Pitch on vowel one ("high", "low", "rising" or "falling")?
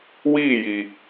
falling